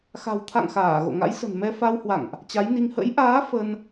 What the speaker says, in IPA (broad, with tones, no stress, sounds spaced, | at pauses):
x a̤˨˩ w t̪ʰ a̰˧˨ ŋ x aː˧˩ ɣ o̰˧˨ ŋ a̰˧˥ j s ə̤˨˩ n m ɛ˧ f a˧ w h w a̰˧˨ ŋ ʔ | t͡ɕ a˨˦ j n i˧ ŋ h ə̰˧˥ j ʔ aː˨˦ f ə˧ n